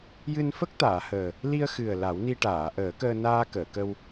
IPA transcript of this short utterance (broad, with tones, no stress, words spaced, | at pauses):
jɨ˧nfə˦˥k̚ t̪aː˨˩˨həː˨˩ | li˧ə̯xɨ˨˩ə̯ la˨˩˦wni˧ʈaː˨˩˨ ʔəː˨˩˦kəː˧ naː˧kəː˨˩˨kə˧w